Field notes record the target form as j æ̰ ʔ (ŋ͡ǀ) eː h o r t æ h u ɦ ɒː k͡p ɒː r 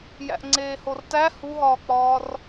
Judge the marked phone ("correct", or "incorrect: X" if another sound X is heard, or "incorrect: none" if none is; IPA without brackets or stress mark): correct